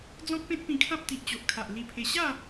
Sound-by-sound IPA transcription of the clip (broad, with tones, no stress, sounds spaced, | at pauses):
d͡z ɔ̃˦ k̚ p ẽ˦ t̚ p ĩ˧ kʰ ã˦ p̚ t̪ i˨ ʔ t͡ɕ o˨ ʔ kʰ a˨ ʔ l i˧ pʰ e˧ ɕ a˥˧